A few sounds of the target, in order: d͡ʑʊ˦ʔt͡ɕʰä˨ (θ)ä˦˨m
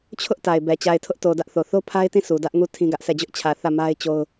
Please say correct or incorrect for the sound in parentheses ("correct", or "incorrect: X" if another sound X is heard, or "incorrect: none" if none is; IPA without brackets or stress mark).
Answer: correct